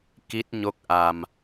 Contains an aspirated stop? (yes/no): no